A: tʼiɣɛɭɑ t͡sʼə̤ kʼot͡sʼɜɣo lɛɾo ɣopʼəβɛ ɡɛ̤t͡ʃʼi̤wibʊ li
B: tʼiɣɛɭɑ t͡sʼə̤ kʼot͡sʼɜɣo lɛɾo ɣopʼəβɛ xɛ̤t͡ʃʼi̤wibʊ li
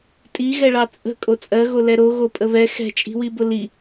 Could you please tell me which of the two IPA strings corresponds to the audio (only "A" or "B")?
B